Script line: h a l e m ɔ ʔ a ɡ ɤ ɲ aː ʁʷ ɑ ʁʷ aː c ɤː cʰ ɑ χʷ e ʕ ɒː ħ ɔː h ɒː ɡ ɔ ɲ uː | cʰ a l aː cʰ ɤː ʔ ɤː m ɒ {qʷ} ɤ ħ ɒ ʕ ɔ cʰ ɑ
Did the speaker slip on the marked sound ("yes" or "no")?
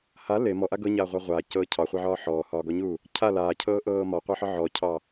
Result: no